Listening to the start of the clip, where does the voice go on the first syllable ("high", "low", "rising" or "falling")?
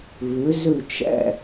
rising